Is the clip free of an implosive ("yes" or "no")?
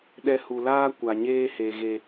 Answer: no